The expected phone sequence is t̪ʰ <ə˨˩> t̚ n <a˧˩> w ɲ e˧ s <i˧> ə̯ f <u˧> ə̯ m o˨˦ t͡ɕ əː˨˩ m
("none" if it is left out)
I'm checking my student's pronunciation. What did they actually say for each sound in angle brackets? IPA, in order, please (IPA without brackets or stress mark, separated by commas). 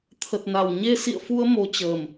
ə˨˩, a˧˩, ḭ˧˨, u˧